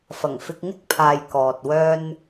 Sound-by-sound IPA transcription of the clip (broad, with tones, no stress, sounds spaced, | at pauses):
f ɐ˨˩ ŋ f ɪ˧ k̚ ŋ ɪ˥ k̚ pʰ aː˨ j k ɔː˨ t̚ w œː˥ n